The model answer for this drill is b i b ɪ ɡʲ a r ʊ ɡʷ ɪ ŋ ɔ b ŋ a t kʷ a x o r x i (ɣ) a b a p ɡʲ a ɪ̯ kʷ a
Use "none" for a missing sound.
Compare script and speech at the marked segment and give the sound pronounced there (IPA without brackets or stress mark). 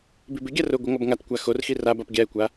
r